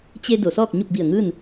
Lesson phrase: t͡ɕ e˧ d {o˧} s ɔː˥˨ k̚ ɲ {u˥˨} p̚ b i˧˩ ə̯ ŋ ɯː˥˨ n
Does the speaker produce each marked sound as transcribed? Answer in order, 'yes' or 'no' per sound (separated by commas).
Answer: no, yes